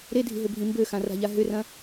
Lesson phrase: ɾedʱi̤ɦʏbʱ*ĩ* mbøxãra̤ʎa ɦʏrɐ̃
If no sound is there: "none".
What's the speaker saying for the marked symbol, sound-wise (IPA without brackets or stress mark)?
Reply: ĩ